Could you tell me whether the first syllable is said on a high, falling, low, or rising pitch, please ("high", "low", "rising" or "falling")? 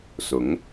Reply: rising